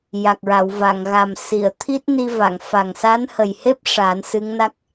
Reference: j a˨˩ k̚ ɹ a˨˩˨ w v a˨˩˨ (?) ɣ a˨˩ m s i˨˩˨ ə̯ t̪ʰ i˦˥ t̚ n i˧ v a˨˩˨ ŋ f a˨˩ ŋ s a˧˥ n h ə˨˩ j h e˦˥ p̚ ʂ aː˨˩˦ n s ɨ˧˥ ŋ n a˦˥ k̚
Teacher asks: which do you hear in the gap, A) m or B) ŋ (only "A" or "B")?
B